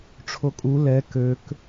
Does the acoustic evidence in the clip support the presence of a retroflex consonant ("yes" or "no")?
yes